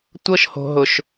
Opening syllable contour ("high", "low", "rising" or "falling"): high